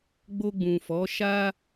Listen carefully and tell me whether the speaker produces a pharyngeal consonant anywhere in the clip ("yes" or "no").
no